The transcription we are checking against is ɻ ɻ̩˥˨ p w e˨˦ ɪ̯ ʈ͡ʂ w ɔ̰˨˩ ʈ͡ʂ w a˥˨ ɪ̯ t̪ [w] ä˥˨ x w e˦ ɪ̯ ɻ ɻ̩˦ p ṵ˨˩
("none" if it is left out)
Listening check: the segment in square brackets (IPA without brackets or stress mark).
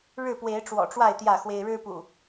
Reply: j